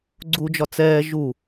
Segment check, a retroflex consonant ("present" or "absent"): absent